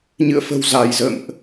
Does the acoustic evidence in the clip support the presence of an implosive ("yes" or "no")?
no